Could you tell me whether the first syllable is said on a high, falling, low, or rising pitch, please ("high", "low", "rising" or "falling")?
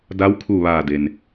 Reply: rising